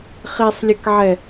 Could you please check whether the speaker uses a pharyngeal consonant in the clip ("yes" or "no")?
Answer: yes